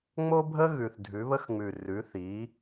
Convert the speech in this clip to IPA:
ŋ͡m o˥ bʱ ə˥ ɣ ʉ˨˩ θ dʱ ʉ˩˥ β ə˥ x ŋ͡m ʉ˨˩ r ʉ˩˥ θ i˩˥

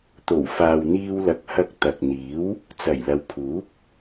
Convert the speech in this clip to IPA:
t̪ o˨˩ w f aː˨ w n̪ iː˧ w l ɐ˨ k̚ h ɐ˧ k̚ t̪ ɐ˨ k̚ n̪ iː˨˥ w | t͡s ɐ˨˩ j l ɐ˨ w pʰ uː˨˥ p̚

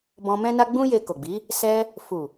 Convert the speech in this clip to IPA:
b ɔ̃˧ m ɛ̃˦ n a˦ ɡ͡b ũ˦ j e˧ k o˨ ɡ͡b i˨˦ | s ɛ˧ | f u˨

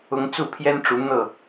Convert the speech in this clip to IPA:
ʊ˦ ŋ t͡s u˥˨ pʰ j ɛ˦ n ʈ͡ʂ u˨˦ n̪ ɤ˥˨

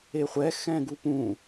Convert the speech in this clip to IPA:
e χʷ ɛ x ɛ̃ ɡ u p ũ

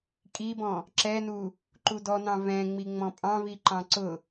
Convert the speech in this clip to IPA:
kʼ i b ɔ̃ | ǁ ɛ n u | ǃ u d ɔ n ɑ̃ v ɛ̃ ŋ͡m i ŋ͡m ɔ̃ pʼ ɑ̃ v i ǃ ɑ̃ ǀ ʊ

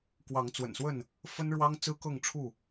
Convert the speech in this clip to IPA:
k w ɑ˨˦ ŋ t͡s w ə̰˨˩ n s w ə˥˨ n | f ə˦ n ɻ w ɑ˦ ŋ t͡s ɹ̩˦ k ɤ˥˨ ŋ ʈ͡ʂʰ u˥˨

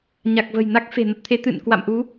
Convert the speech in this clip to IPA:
ɲ a˨˩ k̚ v ə̤˨˩ j n a˦˥ k̚ f e̤˨˩ n ə˦˥ t̚ t̪ʰ e˨˦ t̪ ɨ̰˧˨ n k w a̰˧˨ m ʔ u˨˦

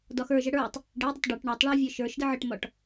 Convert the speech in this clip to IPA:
d ɒ x ə˞ ʒ ə ɽ ə˞ tˤ | ɖ e dˤ ə tˤ ɖ ɒ ʈ ɳ ɒ tˤ ɭ a vʲ ə˞ ʃ ə˞ ʃ d ə ʕ ə ʈ m ɒ ʈ

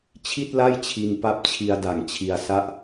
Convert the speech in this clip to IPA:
t͡ɕʰ i˥˩ t̚ l a˥˩ j t͡ɕʰ i˧ n p a˦˥ p̚ t͡ɕʰ i˧ a̯ d a˨˩ ŋ t͡ɕʰ i˧ a̯ s a˥˩ ʔ

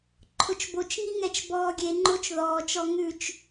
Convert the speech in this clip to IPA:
ǃʰ ʊ t͡ʃ b o t͡ʃ ŋ i ŋ ɛ t͡ʃ b ɔː ɡʲ e ŋ͡ǃ o t͡ʃ ð ɔː t͡ʃ ɔ ŋ ʉ t͡ʃ

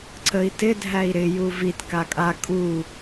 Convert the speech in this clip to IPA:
ǀ ə i̯ t ɪ dʱ æ i̯ ɾ ɪ j u v i t k a kʼ a kʼ u

